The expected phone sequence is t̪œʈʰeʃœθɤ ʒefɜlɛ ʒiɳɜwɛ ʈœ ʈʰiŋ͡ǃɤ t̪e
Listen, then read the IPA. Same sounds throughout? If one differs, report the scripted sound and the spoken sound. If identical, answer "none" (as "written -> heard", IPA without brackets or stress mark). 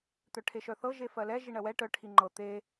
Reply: none